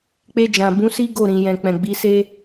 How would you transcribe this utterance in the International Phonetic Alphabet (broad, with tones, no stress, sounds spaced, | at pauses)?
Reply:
k͡p e˧ d͡ʒ ã˨ b ũ˨˦ s i˦ ɡ o˦˨ ɾ ĩ˨ j ɛ̃˨ k͡p ɛ̃˨ ɡ͡b i˨˦ s e˦